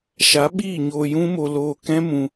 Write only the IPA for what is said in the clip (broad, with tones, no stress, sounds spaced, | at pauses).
ʃ a˨˦ ɓ iː˦˨ ɲ oː˧ j ũ˦ m o˧ l oː˧ k ɛ̃˦ m ũ˧